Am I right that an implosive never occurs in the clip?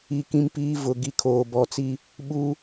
no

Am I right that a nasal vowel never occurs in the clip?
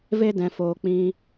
no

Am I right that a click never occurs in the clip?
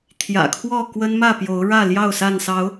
yes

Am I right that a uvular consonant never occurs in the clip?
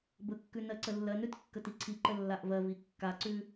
yes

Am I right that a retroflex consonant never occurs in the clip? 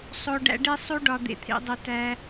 no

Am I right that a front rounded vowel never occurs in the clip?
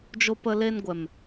yes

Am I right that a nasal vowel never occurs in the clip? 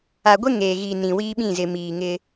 no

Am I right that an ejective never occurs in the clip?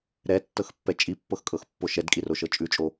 no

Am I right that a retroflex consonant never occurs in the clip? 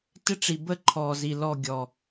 no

